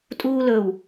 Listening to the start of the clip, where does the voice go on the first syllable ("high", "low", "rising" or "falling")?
high